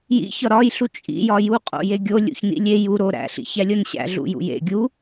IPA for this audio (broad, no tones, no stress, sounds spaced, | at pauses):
j ḭ ç ɒ ɾ ɒ j ɬ u t͡ʃʼ ḭ j ɒ j u qʼ o̰ j e ɡʲ o lʲ ṵ ç n ḭ lʲ e j u ɾ o ɾ æ̰ ɬ ḭ ç æ lʲ o n ɕ æ̰ ɮ ṵ j ṵ j ḛ ɡʲ u